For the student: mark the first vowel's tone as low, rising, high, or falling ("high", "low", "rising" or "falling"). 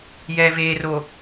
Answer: low